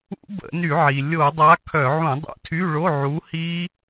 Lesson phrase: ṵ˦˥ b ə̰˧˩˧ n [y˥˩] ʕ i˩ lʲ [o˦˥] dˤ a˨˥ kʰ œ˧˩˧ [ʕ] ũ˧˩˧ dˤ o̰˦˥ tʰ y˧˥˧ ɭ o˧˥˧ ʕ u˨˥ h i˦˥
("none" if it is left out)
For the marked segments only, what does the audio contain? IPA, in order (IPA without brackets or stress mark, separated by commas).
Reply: y˧˩˧, o˧˩˧, ʕ